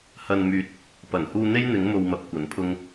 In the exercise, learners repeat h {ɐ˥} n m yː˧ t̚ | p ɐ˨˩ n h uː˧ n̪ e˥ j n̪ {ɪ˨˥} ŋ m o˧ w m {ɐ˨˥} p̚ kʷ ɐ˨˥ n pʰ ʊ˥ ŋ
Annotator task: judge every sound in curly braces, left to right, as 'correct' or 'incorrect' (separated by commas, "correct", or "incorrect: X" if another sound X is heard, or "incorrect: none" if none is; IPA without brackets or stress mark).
incorrect: ɐ˧, correct, correct